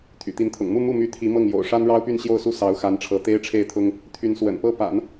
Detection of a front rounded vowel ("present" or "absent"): present